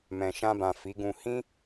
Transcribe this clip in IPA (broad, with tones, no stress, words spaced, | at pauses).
mɛ̃˨ʃã˧bã˨ fi˨˦ɡũ˧ hĩ˦